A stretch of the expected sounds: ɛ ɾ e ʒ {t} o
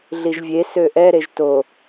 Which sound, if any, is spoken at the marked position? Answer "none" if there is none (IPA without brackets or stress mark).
t